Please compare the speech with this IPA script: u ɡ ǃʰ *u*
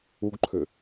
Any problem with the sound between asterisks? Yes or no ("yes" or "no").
yes